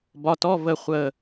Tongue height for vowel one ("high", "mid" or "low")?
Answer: low